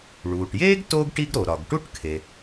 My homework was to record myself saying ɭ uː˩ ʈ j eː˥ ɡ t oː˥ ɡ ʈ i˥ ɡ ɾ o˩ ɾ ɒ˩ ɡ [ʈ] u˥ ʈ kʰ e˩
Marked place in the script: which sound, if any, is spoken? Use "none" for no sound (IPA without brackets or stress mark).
ʈ